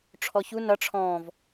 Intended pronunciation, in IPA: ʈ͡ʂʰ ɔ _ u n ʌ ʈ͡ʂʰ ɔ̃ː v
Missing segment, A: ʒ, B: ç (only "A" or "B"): B